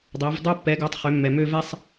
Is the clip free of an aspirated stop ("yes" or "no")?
yes